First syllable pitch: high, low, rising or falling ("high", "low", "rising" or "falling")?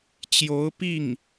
rising